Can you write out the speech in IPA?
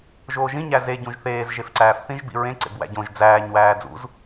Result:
ʒ oː ʒ ĩ ɲ æ z e ɟ ũ ʒ θ eː z ʒ e f ǀ æː f θ ĩ ʒ b ḭ ɹ ẽ ǀ ḛ b w æ̰ ɟ õ ʒ d͡z æː ɲ w æː d͡z ṵ z

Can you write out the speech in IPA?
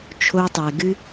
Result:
t͡ʃʰ o˧ tˤ ɛ˨ ɡ ɨ˦

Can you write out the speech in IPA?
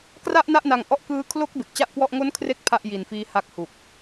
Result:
k r a˥˩ ʔ n a˥˩ ʔ n a˧ ŋ ʔ ɔ˦˥ ʔ k ɯː˧ kʰ l o˦˥ k̚ b e˨˩ k̚ t͡ɕ a˥˩ ʔ k w ɔ˥˩ ʔ ŋ o˦˥ n kʰ r e˥˩ k̚ pʰ a˥˩ ʔ j i˨˩ n f iː˦˥ h a˦˥ k̚ h u˨˩ k̚

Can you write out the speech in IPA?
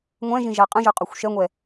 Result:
ŋʷ ɛ̃ ʒ ĩ ʒ a qʼ ə̃ ʒ ə˞ qʼ o xʷ ʃ ɛ ŋʷ ɛ

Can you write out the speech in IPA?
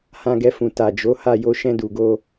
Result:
h ã˧ ɡ ɛ˧ f ũ˨ t a˨ d͡ʒ o˨˦ h a˦˨ j o˧ ʃ ɛ̃˧ d u˨ ɡ o˧

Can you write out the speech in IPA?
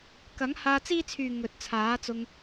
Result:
k ɐ˨˥ ŋ h aː˧ t͡s iː˥ t͡sʰ yː˨ ŋ ɵ˨ t̚ t͡sʰ aː˨˥ t͡s ʊ˧ ŋ

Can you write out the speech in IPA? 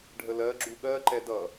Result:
ɖʱ ə l ɜ ɡ͡ǁ u ɠ ɜ ǃ ɛ d ʌ

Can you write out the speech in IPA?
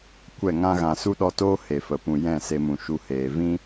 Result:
kʷ ɛ˦˨ ŋ ã˦ ɣ ã˨ s u˦ ɗ ɔ˧ t oː˦ h e˨ f ə˨ p ũ˨ j ɛ̃˦˨ s e˧ m ũ˨ ʃ u˧ h eː˨ v ĩ˦

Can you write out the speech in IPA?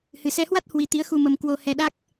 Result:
h ɨ˨˩ s ɛ˧ h w a˦˥ t̚ h w i˧ t̪ i˨˦ ə̯ x u˧ m ə˧ m k w o˧ h ɛ˧ ɗ a˦˥ k̚

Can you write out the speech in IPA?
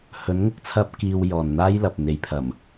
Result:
h ɵ˨˧ n ŋ ʊ˧ k̚ t͡sʰ ɐ˧ p̚ k iː˧ w j ɔː˨ n n̪ aː˥ j l ɐ˨ p̚ n̪ e˨ j pʰ ɐ˨˩ m

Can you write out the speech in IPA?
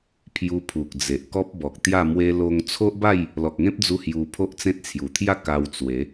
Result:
pʰ j u˧ pʰ u˨ k̚ d͡z e˨ ʔ k ɔ˦ p̚ b ɔ˨ k̚ t̪ j a˥˧ m w e˧ l o˧ ŋ t͡sʰ o˦ ʔ b a˥˧ j | l ɔ˨ k̚ ŋ ẽ˦ p̚ d͡z u˧ h j u˧ pʰ o˦ ʔ t͡s ẽ˦ t̚ t͡sʰ j u˨˩ t̪ʰ j a˥˧ k a˧ w t͡s w e˨˦

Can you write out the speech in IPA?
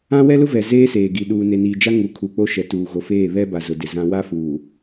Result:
ã˦ w ɛ˦ l ʊ˦ v ɛ˨ z eː˦ s eː˨ ɡ i˨ ɗ uː˨ n e˨ n iː˨ d͡ʒ a˦ ŋ u˨˦ kʰ u˨ k͡p o˦ ʃ ɛ˨ t uː˨ ɣ o˨ f eː˦˨ β ɛ˦ b a˨ z ʊ˨ d ɪ˨ z ã˦ w a˦ f uː˨

